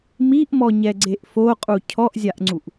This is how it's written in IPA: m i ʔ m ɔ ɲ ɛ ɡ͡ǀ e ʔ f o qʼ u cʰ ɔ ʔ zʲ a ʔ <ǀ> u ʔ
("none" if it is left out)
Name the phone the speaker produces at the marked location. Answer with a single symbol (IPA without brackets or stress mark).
ŋ͡ǀ